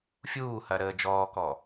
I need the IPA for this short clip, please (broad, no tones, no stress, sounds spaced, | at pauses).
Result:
fʲ uː h ɐ ɾ əː d͡ʒ ɔː k ɔ